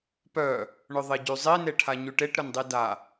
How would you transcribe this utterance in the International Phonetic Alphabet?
pœ | ɳʊðˤeɟyzˤi neʈʰaɲyʈeʈ ɾʊndˤida

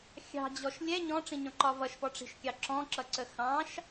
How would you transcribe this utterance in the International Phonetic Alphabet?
xʲɑ̤d͡ʑɔʃ lʲɛ ɲɔ̃ʈ͡ʂĩɲɔ̃ǃɒ vʌʃpɔʈ͡ʂi̤ʃkʲɑ ǁɔ̃ǁʌǀə xɑ̃ʃ

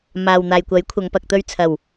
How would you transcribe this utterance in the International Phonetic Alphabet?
maː˨wn̪aː˨jkʷɐ˨˥jkʷʰɐ˨˧ŋ pɐ˨k̚t̪ɵ˧ɥ t͡sʰɐ˨˩w

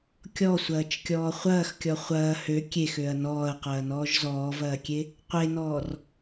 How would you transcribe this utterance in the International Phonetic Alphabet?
kʲɔsʷɐːt͡ʃkʲɔː χʷɐːxkʲɔ χʷɐː hø kʲexøɐ̯ nɔːɐ̯qɐːnɔːʒ zɔːvɐːkʲe | qʷenɔːr

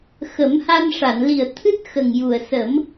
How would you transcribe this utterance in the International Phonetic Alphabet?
xə˨˩˦mha˧nʂa˨˩˨n li˨˩ə̯ t̪ʰɨ˦˥t̚xə˨˩ŋ ju˨˩ə̯sə˨˩˦m

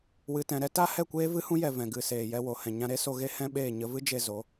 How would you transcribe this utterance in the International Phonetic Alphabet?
wɨ˨tɛ̃˨ɾɛ˧ta˦ hɛ˦˨kʷeː˦vɨ˦hũ˦ jɛ˧vɛ̃˨ ɡɨ˨ seː˨jɛ˧wo˨ hɛ̃˨ɲã˧ɾe˦so˧ ɣe˦hɛ̃˦ɓeː˦˨ ɲə˧vɨ˦d͡ʒe˧ zo˨˦

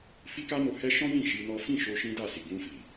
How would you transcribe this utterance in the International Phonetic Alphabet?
fi˦ka˦no˧hɛ˦ ʃɔ̃˦jĩ˦˨ ʃi˧nɔ˦ fĩ˦˨ʃo˧ ʃĩ˦da˦˨si˨ ɡũ˧ fi˨

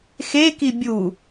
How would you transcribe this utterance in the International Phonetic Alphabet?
xeki bʲu

